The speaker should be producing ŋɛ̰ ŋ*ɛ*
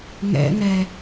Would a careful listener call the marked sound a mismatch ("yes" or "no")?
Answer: no